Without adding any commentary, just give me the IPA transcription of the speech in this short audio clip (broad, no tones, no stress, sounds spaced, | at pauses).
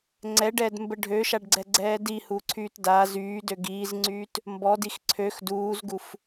ŋ͡ǀ ɛ ɖ ɛː d m b ə ɖʱ ø ʃ a ɖ ɡ͡ǀ ɛ ɡ͡ǀ ɛː d i h u ǀʰ yː t d a z yː d ø ɡ iː z ŋ͡ǀ yː t | m b ɔ d i x ǀʰ ø x d uː z ɡ u f